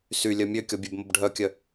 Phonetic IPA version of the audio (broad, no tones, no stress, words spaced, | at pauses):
sylʲœ mʲøkʲɔbʲøbməb ɖʱœkʲœ